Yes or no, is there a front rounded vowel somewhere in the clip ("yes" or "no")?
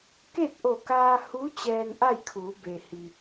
no